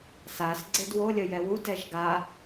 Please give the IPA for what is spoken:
s a s ɡ͡ǀ e d w o lʲ ə j ɛ w u d ɛ ʒ ɡ a

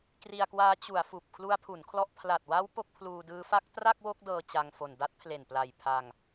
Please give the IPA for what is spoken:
k r i˧ a̯ k w aː˦˥ t͡ɕ u˩˦ a̯ f uː˨˩ p̚ kʰ l u˦˥ a̯ pʰ u˩˦ n kʰ l ɔ˦˥ ʔ pʰ l a˨˩ t̚ w a˦˥ w p o˦˥ k̚ pʰ l uː˧ d ɯː˦˥ f a˦˥ k̚ t r a˥˩ k̚ w o˦˥ k̚ d ɤː˧ t͡ɕ a˧ ŋ f o˨˩ n d a˦˥ t̚ pʰ l e˨˩ n p l a˨˩ j pʰ a˧ ŋ

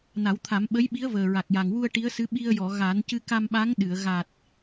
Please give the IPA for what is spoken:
n a˨˩˦ w t̪ʰ a˨˩˦ m ɓ ə˧˥ j ɓ i˧˥ ə̯ v əː˨˩ ɹ a˨˩ k̚ j a˨˩ ŋ w u˧ ə̯ ʈ i˧˥ ə̯ s ɨ˧˥ ɓ i˧ ə̯ j ɔ˨˩˨ ɣ a˨˩˦ n c ɨ˧ k a˧ m ɓ a˧˥ ŋ ɗ ɨ˨˩˨ ə̯ ɣ a˨˩ t̚

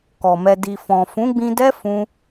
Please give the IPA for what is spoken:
k ɔ˨ m ɛ˧ d i˨ f ɔ̃˨ f ũ˨˦ ɡ͡b ĩ˧ d ɛ˦ f ũ˦

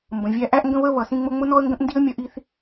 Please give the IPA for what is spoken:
m b ə̃˩ vʲ æ˥ ʔ æ˥ ʔ ŋ ɡ ə̃˥ β ə˥ β ʌ˩ s ĩ˥ ŋ͡m ʊ˥ ŋ͡m ʊ˥ n ɔ˥ ə̯ ŋ ɡ ə̃˥ ʔ n d i˥ ə̯ mʲ ʌ˥ ʔ i˥ θ

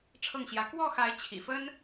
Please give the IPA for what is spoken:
ʈ͡ʂʰ ɤ˥˩ ŋ ɕ j ä˧˥ k w ɔ˥˩ x a˧˥ ɪ̯ t͡ɕʰ ḭ˨˩ f ə˥ n

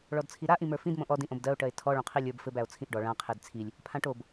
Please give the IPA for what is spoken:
ɭ ɔ d t͡sʰ i ɾ a ʔ ĩ m ə˞ f ĩ d m õ ʔ ɔ d ĩ ʔ õ b d ɜ o̯ ʈ ɜ e̯ tʰ ɔ ɭ õ qʰ i lʲ ə˞ b f ɘ b æ o̯ t͡sʰ ĩ ʔ ɖ ɔ ɭ ã qʰ e d t͡sʰ i lʲ | pʰ ã ʈ o b

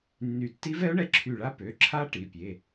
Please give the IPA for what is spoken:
nː y˧˩ tː i˦˥ v ɛ˦˥ ʊ̯ ɳ ɛ˧ ǁʰ y˧˩ ɭ a˦˥ p ø˩˧˩ ǁʰ a˦˥ ʈ i˩˧˩ pʲ e˩˧˩

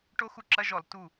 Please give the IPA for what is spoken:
ʈ o˦˥ x u˧˥˧ ǁ ɐ˧˥˧ ʒ ɔ˧˩˧ l t u˧˩

